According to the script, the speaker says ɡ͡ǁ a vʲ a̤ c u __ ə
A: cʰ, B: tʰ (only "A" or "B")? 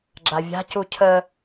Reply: A